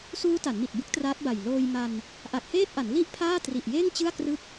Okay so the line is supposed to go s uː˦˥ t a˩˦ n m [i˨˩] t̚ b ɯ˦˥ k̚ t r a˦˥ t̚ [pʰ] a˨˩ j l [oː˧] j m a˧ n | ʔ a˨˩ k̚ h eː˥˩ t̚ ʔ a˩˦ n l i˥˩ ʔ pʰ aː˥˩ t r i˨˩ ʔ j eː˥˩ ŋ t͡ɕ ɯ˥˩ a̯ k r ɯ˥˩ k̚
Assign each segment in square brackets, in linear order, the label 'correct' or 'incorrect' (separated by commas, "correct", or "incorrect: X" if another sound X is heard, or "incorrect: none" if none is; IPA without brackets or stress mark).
correct, incorrect: b, correct